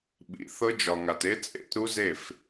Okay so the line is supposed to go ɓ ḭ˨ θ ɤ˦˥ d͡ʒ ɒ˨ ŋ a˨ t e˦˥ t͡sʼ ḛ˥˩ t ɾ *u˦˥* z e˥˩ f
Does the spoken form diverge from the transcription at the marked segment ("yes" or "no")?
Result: no